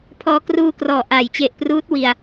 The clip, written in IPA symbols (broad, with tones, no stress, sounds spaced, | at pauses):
pʰ ɔː˧ k r uː˧ k r ɔː˨˩ ʔ a˨˩ j t͡ɕ e˨˩ ʔ p r uː˦˥ t̚ w i˧ a̯